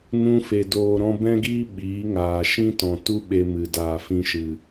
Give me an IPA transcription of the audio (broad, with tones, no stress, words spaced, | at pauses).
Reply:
nũ˧fe˨ doː˨ɾɔ̃˧bɛ̃˦ɡiː˦ ɓiː˨˦ŋaː˨ ʃĩ˦tɔ̃˨ tu˦ɓe˧mɨ˨ daː˨fĩ˧ʃɨ˨